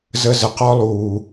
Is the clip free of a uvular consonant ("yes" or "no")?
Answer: no